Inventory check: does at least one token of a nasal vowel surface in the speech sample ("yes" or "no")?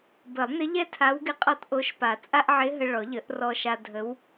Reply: no